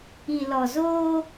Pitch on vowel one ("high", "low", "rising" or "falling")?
low